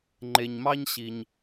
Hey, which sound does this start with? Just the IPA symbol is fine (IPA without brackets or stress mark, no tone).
ŋ͡ǃ